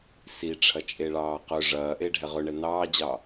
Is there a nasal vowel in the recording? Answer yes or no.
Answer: no